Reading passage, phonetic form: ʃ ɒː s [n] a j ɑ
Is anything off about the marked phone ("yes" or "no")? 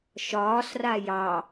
yes